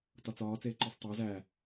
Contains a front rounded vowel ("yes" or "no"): no